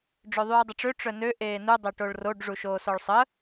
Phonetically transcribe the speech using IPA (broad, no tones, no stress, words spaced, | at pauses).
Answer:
ɖ͡ʐøðˤyːdˤəʈ͡ʂø ʈ͡ʂœnø ʔeːnu dˤeʈoɭroɖ ʐuʃoːsɔɭsˤə